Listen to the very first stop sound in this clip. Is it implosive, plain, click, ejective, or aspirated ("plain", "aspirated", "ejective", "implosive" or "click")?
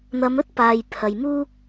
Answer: plain